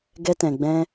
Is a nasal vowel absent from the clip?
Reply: no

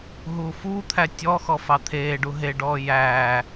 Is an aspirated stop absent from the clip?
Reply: no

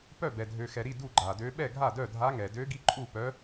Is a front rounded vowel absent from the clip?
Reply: no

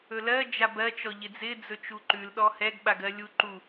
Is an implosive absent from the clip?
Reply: no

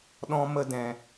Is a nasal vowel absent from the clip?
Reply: no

